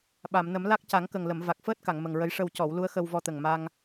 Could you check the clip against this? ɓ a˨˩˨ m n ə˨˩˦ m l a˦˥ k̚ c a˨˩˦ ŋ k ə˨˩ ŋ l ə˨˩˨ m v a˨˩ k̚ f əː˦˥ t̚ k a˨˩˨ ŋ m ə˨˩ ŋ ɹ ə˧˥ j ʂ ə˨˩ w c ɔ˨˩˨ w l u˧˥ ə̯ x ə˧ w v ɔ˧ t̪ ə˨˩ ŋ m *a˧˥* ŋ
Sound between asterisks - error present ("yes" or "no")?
yes